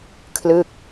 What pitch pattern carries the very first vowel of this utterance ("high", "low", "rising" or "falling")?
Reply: falling